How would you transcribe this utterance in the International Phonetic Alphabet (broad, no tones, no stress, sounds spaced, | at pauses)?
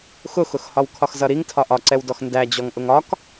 x ʊ x ʊ x h ɒ w kʰ ɒ x z ʌ ɾ i ŋ tʰ ɒ ʔ ɒ ǀ ɛ w d ɔ x n d æ d͡ʑ ɔ ŋ ʔ ʊ ŋ ɒ k